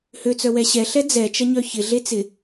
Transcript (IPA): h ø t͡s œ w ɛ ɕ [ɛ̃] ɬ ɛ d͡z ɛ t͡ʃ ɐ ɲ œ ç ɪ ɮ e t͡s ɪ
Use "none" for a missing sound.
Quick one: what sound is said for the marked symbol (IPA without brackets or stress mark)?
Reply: ɛ